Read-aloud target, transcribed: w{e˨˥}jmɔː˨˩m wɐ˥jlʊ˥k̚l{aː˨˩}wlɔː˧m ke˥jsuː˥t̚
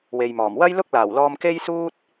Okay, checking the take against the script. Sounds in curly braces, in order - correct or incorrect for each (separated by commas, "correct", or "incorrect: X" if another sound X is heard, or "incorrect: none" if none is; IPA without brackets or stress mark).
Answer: incorrect: e˨, correct